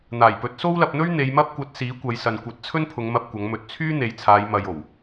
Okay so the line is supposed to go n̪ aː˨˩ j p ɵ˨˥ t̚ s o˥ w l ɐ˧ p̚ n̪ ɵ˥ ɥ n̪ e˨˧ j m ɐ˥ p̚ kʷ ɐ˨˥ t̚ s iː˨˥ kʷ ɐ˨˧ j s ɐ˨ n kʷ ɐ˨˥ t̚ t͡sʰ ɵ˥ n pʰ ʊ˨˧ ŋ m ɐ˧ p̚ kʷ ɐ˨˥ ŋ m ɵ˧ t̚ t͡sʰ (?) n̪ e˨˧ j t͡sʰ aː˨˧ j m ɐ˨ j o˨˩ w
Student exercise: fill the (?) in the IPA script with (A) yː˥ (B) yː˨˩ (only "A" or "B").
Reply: A